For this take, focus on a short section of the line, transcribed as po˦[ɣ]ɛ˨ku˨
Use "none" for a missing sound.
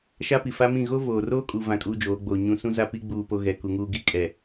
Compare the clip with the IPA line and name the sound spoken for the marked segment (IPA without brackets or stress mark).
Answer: ɣ